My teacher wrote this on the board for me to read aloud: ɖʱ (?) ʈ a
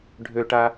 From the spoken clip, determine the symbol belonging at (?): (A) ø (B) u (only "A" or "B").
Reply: A